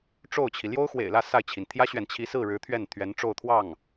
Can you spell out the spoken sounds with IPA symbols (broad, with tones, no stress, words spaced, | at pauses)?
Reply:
ʈ͡ʂo˥˩ʊ̯t͡ɕʰi˩ ljo˥ʊ̯xwḛ˨˩ɪ̯lä˥˧ sa˥˩ɪ̯t͡ɕʰi˩n t̪ʰjä˥ɕɥɛ˨n t͡ɕʰi˧˥sɹ̩˥˩ ɻɻ̩˧˥t̪ʰɥɛ˥˩n t̪ʰɥɛ˧˥nʈ͡ʂo˥˧ʊ̯ t̪ʰwɑ˥˩ŋ